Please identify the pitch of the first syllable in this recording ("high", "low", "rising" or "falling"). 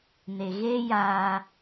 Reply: low